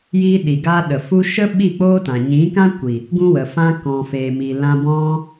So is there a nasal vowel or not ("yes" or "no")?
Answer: yes